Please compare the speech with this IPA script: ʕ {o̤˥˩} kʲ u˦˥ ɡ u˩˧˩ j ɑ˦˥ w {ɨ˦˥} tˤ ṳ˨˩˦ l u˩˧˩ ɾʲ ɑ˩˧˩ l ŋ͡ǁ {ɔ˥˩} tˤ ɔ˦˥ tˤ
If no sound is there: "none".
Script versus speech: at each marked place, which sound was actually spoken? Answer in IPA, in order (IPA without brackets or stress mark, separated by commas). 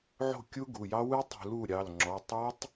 o̤˥˩, ɨ˦˥, ɔ˩˧˩